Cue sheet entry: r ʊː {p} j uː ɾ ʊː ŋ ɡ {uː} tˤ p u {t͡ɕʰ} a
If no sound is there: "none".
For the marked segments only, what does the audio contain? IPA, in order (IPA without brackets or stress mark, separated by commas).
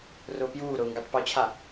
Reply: p, u, t͡ɕʰ